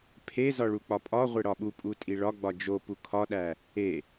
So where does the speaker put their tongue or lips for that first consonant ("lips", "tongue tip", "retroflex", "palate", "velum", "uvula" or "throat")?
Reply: lips